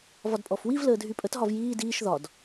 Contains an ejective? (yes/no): yes